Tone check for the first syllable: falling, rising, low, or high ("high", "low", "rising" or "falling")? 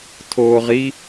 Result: low